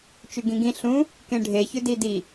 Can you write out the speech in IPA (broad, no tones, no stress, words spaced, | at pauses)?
t͡ʃʉɡĩɡĩ ɬũ | kẽɖʱeçʉdi di